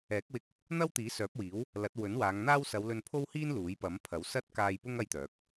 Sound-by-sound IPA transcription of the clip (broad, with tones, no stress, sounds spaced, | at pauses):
ɛː˨˥ k̚ w ɪ˧ k̚ | n̪ ɐ˥ w t̪ iː˨˥ s œː˨˥ p̚ w iː˨˥ w | l ɐ˨˥ t̚ w ɵ˨˥ n w aː˨˧ ŋ n̪ aː˥ w s ɐ˨˧ w l ɵ˧ n pʰ o˥ w h iː˥ n l uː˨˥ j p ɐ˨˥ m pʰ ɐ˨˥ w s ɐ˥ t̚ k aː˧ j p ʊ˥ ŋ ɐ˥ j t̪ œː˨˥ k̚